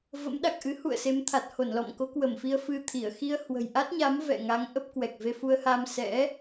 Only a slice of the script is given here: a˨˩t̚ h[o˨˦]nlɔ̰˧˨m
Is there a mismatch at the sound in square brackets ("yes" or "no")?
yes